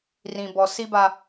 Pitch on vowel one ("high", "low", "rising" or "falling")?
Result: low